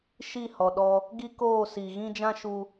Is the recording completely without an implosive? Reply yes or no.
no